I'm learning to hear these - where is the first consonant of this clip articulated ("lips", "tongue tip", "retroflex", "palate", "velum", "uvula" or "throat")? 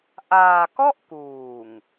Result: throat